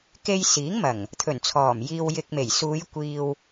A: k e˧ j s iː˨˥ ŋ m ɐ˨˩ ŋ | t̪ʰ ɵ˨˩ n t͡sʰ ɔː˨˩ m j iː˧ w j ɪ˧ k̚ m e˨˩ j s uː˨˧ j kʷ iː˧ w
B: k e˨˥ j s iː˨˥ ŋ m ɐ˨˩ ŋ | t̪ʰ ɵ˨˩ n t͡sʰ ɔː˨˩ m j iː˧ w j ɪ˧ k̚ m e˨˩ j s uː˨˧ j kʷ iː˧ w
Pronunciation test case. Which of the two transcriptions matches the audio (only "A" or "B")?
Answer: A